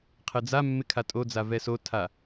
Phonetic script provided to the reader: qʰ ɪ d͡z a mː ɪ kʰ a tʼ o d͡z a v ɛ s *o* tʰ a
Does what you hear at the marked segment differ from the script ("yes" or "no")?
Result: no